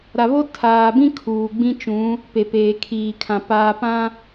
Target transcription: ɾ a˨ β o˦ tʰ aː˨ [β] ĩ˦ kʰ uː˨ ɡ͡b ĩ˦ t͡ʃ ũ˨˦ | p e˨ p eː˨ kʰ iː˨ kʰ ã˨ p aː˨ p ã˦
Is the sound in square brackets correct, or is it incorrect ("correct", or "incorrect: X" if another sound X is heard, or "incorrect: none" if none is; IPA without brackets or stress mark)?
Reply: incorrect: b